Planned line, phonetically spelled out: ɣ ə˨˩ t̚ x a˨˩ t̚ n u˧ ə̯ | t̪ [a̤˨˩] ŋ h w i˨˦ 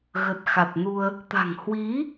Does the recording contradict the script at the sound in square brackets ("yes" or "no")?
no